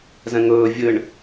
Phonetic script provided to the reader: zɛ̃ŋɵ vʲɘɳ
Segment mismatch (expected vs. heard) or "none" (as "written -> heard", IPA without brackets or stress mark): ɵ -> ɵː